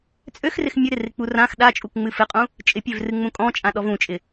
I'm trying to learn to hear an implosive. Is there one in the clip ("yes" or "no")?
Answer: yes